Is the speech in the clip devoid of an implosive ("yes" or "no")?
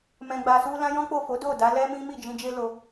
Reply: yes